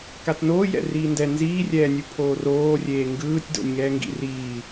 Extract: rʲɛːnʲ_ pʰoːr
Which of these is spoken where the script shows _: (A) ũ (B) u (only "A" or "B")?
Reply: B